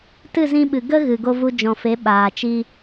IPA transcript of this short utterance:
t ɨ˦˨ z ĩ˧ ɓ ɨ˨ ɡ ə˦ ɣ ɨ˨ ɡ o˧ v u˧ d͡ʒ ɔ̃˨ f e˨˦ ɓ aː˨ t͡ʃ i˦

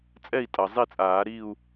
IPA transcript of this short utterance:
t͡sʼ ɛ˥˨ i̯ tʼ ʌ˩ zˤ i˥˨ t͡sʼ aː˨˩˦ ɾ i˥˨ u̯

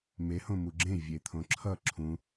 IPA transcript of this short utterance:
m e h õ m u ɡ͡ǁ ẽ vʲ e t̪ʰ õ ǁʰ ʌ ǁʰ ũ

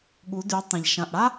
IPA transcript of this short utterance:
ɠ u˩˧ d y˩˧ tˤ ã˩ ʎ ʃ ɐ̃˩ ʔ ɽ a˥

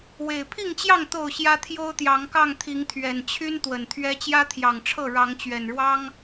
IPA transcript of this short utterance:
w e˨˩ ɪ̯ pʰ i˥˨ ŋ t͡ɕ j ɑ˥˨ ŋ t̪ o˥˨ ʊ̯ ɕ j ä˦ t̪ʰ j o˦ ʊ̯ t̪ j ɑ˨˦ ŋ k ɑ˥˨ ŋ t̪ʰ i˨˦ ŋ t̪ʰ ɥ ɛ˨˩ n t͡ɕʰ y˦ n t̪ w ə˨˩ n t̪ʰ ɥ ɛ˦ t͡ɕ j ä˦ t̪ʰ j ɑ˨˩ ŋ ʈ͡ʂʰ ɤ˥˨ ɻ ɑ˨˦ ŋ t͡ɕ ɥ ɛ˨˩ n ɻ w ɑ˦ ŋ

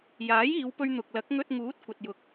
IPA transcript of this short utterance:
j aː˨˥ j iː˨˧ w p ɵ˧ ɥ n̪ ʊ˨ k̚ l ɐ˨˥ k̚ ŋ ɵ˧ t̚ ŋ uː˨˥ t̚ kʷ ɐ˨ t̚ j ʊ˨˥ k̚

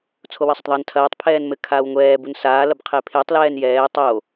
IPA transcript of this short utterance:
t͡sʰ o w ɘ sˤ ɐ tˤ ðˤ a n tʰ ɐː tˤ pʰ ɛː n m ɘ kʰ aː w ŋʷ ɛː b u n s aː l ɐ b qʰ e pʰ e tˤ l ɛː n j ɛː tˤ o

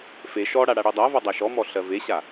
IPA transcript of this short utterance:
f e ʃ ɔ ɽ a ɽ a ɽ e dˤ a v ɔ dˤ a ʃ ɔ m ɔ ɬ ɜ v e ɕ a

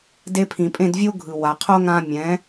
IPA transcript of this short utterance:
d e˧ pʰ ĩ˨ pʼ ẽ˦˨ d vʲ o˦ ɡʱ ɯ˨ w a˨ qʰ o˦ ŋ ã˧ mʲ ɛ̃˨˦

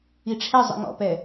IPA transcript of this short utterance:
i ʈ͡ʂʰ ɛ zˤ ḭ ŋ ɔ̰ p ɛ

